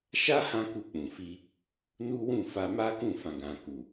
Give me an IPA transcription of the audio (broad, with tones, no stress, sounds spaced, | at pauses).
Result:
ʃ a˦ h ã˦ k u˧ k͡p ũ˨ f i˧ | n u˦ w ũ˦˨ f a˧ m a˦ k ũ˦˨ f ã˨ ɡ ã˨ k u˨